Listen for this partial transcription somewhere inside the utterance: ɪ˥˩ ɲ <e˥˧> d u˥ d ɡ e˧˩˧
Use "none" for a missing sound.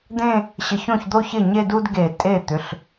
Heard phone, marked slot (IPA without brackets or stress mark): e˥˧